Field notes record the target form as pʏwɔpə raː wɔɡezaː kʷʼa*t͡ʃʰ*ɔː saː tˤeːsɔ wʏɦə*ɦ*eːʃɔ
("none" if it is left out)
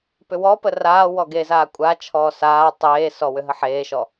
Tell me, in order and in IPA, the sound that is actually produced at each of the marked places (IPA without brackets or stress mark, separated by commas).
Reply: t͡ʃʰ, ħ